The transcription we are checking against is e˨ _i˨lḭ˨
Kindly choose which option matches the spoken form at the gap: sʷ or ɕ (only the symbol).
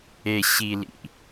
ɕ